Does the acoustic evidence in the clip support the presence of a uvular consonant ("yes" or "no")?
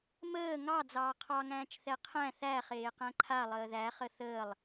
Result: yes